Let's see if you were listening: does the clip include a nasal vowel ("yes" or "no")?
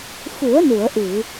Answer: no